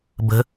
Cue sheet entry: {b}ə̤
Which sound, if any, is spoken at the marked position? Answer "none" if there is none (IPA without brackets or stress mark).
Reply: b